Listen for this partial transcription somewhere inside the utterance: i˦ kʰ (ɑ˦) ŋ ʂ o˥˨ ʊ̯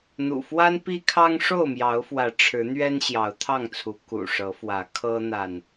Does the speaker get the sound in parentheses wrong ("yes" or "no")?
no